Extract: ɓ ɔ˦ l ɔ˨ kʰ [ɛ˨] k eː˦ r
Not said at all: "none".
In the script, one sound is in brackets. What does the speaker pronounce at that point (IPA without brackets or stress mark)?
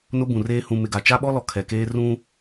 ɛ˨